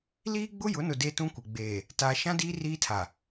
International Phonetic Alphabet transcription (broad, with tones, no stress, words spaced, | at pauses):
liː˦ɡ͡bʊ˦ jʊ˨˦nʊ˨ de˦tũ˦kʷɪ˨ ɡ͡beː˨ | taː˨ʃã˦diː˦ riː˦tʰa˨